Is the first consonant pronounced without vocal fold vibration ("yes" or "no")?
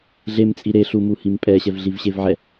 no